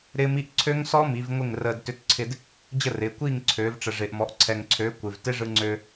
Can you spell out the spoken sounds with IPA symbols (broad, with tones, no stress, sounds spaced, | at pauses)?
ɾ ɪː˦˥ m i˦˥ ʔ ǀʰ ø˦˥ ŋ s ɔ˦˥ m i˩˧ v ŋʷ ɪ˥˨ ŋ r əː˧ d t ʏ˧ t ǀʰ ɪ˧ d | d͡ʑ ə˥˨ r ɪː˩˧ kʷ iː˥˨ ŋ ǀʰ øː˩˧ v ʈ͡ʂ ə˩ ʐ ɪː˩ ʔ m ɔ˩˧ ʔ ǀʰ ɛ˩ ŋ ǀʰ øː˩˧ kʷ ɪ˩ v t ɪ˦˥ ʐ ɯ˧ ŋ͡ǀ øː˧